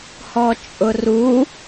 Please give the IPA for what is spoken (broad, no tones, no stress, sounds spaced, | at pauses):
h ɔ t͡ʃʼ ʊ r u